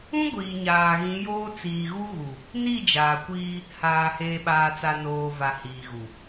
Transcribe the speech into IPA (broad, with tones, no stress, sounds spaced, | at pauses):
ũ˦ ɡʷ iː˨ ɲ aː˨ ɣ ĩ˨˦ j oː˦ t͡s iː˨ ɣ u˦ ɣ u˨ | n i˦˨ d͡ʒ aː˨ kʷ iː˦ | h aː˨ h eː˨ ɓ aː˨ t͡s a˨ n oː˨ v a˨ h iː˨ ɣ u˨